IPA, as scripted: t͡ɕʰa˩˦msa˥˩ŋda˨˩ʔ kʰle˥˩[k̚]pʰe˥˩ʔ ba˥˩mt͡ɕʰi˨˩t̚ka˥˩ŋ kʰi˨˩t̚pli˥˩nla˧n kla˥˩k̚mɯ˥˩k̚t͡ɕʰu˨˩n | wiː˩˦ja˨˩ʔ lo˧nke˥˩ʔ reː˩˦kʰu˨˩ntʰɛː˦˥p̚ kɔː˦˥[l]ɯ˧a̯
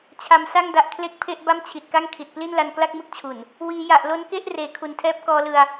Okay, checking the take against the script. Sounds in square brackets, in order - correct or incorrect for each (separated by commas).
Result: correct, correct